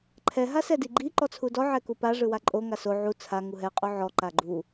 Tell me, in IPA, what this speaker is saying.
ǃʰ ɛ ɦ a s ɛ d i ɡ͡ǃ i ǃ ɔ t͡sʰ u d ɔ ʕ ɛ k u p a ʐ ɯ w a ǃʼ o ŋ a s o ʕ u t͡sʰ a ŋ u ɦ ɛ qʼ o ʕ ɔ ǃ a ɡ͡ǃ u

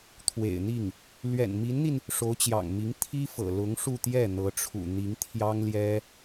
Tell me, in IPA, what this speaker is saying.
t̪ʰ w ḛ˨˩ ɪ̯ n̪ i˥˩ ŋ | l ɥ ɛ̰˨˩ n m i˧˥ n n̪ i˧ n | ʂ o˧˥ ʊ̯ t͡ɕ j ɑ̰˨˩ ŋ m i˧˥ ŋ t̪ʰ i˥ f ɤ̰˨˩ l ʊ˧˥ ŋ ʂ u˥˧ t̪ j ɛ˥˩ n̪ ɤ˧˥ ʈ͡ʂʰ ṵ˨˩ n̪ i˧˥ ŋ t̪ʰ j ɑ˥ ŋ l j ɛ˥

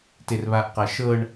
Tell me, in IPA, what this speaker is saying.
t e r β a ʔ q a ʃ ɤ ɳ

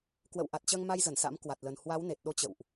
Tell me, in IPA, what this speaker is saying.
k w ə̰˧˨ w ʔ a˨˩ t̚ t͡ɕ əː˧ ŋ m a˧ j z ə˧˩ n s a̰˧˥ m k w a˨˩ t̚ l ə˨˩ n h w a˨˦ w n e˨˩ t̚ ɗ o˧ t͡ɕ ə̰˧˨ w ʔ

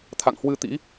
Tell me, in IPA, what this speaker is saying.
t̪ʰ a̰˧˨ ŋ h w ɨ˧ t̪ ḭ˧˥

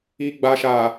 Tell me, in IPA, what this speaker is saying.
i˨ ɡ͡b a˨ ʃ a˨

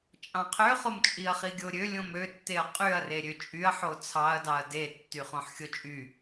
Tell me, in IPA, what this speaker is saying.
t͡ʃʼ ɑ̃ qʰ ø χ o m t͡ʃʼ i ɐ̯ χ i ɡʲ o ɾʲ ø lʲ õ m ø tː e ɐ̯ qʼ y ɐ̯ r e ɾʲ ø t͡ʃʼ y ɐ̯ ħ o t͡sʰ ɑ ɐ̯ d ɑ ɐ̯ d e tː y χ õ ħ xʲ o t͡ʃʼ y

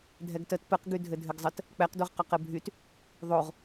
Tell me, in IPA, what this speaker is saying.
dʱ ɛ ɡ t ə t p ɘ q ɡ y dʱ ɘ dʱ ɘ ɡ zˤ ə t | k͡p ɛ q d o ʁ q œ q ɘ bʱ y t | ðˤ o ʁ

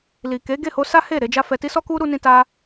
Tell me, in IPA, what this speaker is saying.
l i˨ k e˨˦ ɡ e˦˨ h o˧ s a˦ h e˦˨ ɾ e˧ d͡ʒ a˦ f ɛ˧ t i˦ s ɔ˦ k u˦ ɾ u˧ n ĩ˧ t a˦

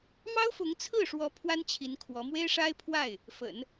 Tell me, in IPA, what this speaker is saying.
m ɑ˥ ʊ̯ f ʊ˧˥ ŋ t͡sʰ ɹ̩˥˩ ʂ w ɔ˧˥ pʰ w a˥ n t͡ɕʰ i˧˥ n kʰ w ɔ˧˥ m w e˥ ɪ̯ ʂ a˥ ɪ̯ pʰ w a˥˩ ɪ̯ | f ə̰˨˩˦ n

